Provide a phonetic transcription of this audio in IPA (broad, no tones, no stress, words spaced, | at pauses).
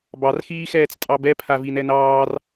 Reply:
bɑrxiːxɛːt͡s tʼɑbɛpʰa vinɛnɑːr